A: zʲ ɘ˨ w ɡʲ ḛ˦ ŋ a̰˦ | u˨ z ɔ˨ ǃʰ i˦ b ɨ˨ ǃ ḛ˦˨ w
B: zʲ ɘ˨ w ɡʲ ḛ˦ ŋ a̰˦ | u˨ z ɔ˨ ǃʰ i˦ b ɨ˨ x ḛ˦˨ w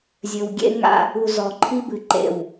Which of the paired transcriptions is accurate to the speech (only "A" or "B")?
A